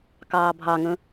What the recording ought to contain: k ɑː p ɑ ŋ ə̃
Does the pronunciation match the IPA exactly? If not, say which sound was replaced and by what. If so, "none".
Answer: p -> bʱ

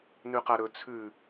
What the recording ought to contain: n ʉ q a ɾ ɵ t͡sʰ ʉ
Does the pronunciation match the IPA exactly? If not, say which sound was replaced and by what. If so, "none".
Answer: none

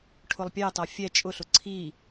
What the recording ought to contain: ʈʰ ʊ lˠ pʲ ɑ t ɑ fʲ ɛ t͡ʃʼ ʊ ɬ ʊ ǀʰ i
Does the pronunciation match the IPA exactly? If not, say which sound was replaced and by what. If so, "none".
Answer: none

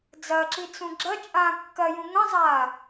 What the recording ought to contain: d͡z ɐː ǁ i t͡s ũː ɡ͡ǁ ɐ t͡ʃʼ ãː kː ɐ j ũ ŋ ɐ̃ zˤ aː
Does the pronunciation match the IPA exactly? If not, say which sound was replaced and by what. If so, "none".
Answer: ũː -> ũ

